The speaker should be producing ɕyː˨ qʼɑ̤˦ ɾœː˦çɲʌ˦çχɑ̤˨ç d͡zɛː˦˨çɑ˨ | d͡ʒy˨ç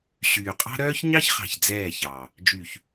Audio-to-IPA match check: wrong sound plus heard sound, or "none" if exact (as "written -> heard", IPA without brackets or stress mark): ʌ˦ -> ɑ˦